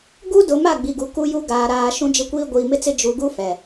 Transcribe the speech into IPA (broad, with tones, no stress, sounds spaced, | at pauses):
ɡ u˦ d ʊ˨˦ m a˦˨ ɡ͡b i˨ ɡ u˨ k u˦ j u˦ ɡ aː˨ ɾ aː˨ ʃ ũ˦ d͡ʒ ɪ˦ kʷ iː˦ ɡʷ iː˨ m ɪ˦ t͡s ɪ˦ d͡ʒ u˨˦ ɡ u˦ f ɛ˨